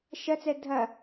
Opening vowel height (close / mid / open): open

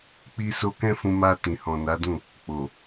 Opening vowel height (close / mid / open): close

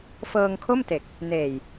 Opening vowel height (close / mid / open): mid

